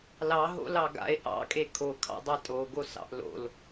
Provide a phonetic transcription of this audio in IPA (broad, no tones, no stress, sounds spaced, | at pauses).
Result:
l ɑ ɦ o̰ l ɑ ɡ a̰ e̯ ʔ ɑ̰ kʼ e kʰ o kʰ ɑ̰ dˤ ɑ tʼ o ɡ o s ɑ̰ ʔ l o̰ l